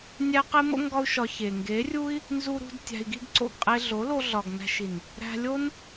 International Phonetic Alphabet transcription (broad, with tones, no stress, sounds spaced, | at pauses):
nʲ æ˦ q e˦ m o̰˦ ŋ ɡ ɒ˦ u̯ ʃ ɒ˧ ç e˨ ŋ ɡ e˨˦ rʲ u˦ i̯ | n z u˧ ɾ ṳ˧ d tʲ æ̤˧ i̯ ɡ i˦ ɡ ǀ o̰˦˨ ɡ qʼ e˧ ɮ o˨˦ l o˧ ɮ ɒ˨ ɡ n æ̤˧ ʃ i˨ n | ɾ æ̤˧ lʲ o˦ n